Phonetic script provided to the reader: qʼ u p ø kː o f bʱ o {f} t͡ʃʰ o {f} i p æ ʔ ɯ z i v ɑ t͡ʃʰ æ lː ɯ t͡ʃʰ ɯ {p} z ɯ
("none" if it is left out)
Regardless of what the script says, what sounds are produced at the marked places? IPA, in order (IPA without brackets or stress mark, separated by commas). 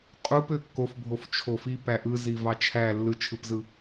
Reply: f, f, p